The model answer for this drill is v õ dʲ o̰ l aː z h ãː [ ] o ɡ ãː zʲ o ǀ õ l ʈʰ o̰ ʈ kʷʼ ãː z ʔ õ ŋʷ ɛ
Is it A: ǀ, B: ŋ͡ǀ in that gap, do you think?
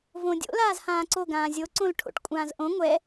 A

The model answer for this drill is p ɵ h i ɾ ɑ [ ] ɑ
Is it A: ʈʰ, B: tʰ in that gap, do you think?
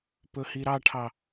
A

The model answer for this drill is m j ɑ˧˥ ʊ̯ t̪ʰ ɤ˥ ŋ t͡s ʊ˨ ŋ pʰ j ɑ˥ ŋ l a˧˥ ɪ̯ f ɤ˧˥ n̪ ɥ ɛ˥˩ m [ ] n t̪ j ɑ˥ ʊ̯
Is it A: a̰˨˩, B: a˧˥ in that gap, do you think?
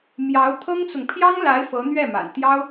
A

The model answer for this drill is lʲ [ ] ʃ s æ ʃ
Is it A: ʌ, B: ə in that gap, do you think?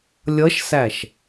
A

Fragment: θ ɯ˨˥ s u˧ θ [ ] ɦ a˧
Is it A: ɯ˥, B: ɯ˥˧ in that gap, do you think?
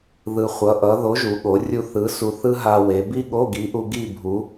A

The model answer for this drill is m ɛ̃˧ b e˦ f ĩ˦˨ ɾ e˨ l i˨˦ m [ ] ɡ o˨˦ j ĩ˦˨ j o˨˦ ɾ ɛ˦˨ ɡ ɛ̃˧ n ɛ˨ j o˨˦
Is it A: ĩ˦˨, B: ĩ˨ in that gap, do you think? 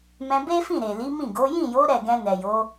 A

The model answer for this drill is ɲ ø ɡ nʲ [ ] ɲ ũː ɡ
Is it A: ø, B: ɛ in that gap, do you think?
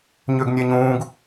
B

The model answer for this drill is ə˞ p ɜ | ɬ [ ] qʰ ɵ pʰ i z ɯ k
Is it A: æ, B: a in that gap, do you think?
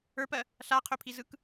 B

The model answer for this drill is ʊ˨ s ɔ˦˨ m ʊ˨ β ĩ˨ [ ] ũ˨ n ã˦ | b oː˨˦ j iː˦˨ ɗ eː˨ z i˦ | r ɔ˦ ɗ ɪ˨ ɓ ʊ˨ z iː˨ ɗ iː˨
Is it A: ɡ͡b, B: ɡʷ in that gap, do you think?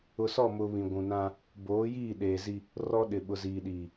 B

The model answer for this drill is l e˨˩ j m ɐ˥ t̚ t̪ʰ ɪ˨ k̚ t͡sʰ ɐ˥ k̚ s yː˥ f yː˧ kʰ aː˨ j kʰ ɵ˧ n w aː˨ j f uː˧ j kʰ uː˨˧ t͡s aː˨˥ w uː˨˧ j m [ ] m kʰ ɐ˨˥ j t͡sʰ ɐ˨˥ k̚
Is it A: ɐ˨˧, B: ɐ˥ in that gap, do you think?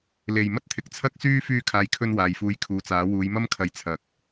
B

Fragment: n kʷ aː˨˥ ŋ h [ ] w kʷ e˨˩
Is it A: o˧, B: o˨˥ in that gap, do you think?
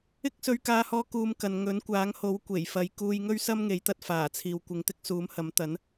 B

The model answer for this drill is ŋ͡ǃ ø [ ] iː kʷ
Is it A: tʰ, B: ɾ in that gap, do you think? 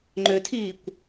A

